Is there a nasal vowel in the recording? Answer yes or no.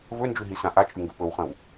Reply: yes